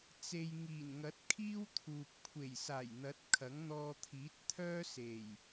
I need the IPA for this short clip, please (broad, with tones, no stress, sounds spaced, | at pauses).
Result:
t͡s e˧ j ŋ iː˨˩ n ŋ ɐ˨˥ t̚ kʰ iː˥ w t̪ʰ uː˨ p̚ kʷʰ e˨˩ j s aː˨˩ j n̪ ɐ˨˥ t̚ kʰ ɐ˨˥ ŋ n̪ ɔː˧ t̪ʰ iː˨˥ t̚ t̪ʰ œː˥ s e˨˩ j